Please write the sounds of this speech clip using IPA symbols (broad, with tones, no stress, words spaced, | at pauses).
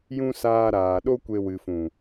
jũ˧ saː˧ɾaː˨ɗo˦kʷe˧ wɨ˨fũ˨